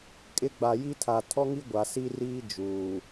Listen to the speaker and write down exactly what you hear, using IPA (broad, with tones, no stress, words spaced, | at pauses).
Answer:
kʼɪ˦ ɡ͡ba˨ji˦tʰa˨ tʰɔ˦ŋi˦ ɡʷa˨si˦riː˦ d͡ʒuː˨